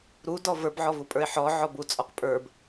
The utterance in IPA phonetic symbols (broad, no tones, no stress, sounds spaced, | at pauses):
ɾ u d ɔ v ə˞ b ʕ ɔ v u pʼ ə˞ e̯ ħ ɔ ʕ ɔ b u t͡sʼ ɔ q pʼ ə˞ b